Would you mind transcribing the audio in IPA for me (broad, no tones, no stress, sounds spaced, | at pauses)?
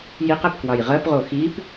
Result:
j i q ɛ p k w ɑ j ʁ ɜ p ʁ o x i p